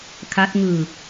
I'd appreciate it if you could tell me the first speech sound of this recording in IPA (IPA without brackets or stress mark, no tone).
kʰ